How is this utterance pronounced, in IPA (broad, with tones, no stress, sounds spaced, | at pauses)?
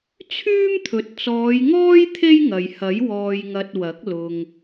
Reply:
t͡sʰ yː˥ m t̪ʰ ɵ˨ t̚ t͡s ɔː˨˧ j ŋ ɔː˥ j t̪ʰ e˥ j ŋ ɐ˨ j h ɐ˨˥ j w ɔː˧ j ŋ ɐ˧ t̚ w ɐ˨˥ k̚ l ʊ˨ ŋ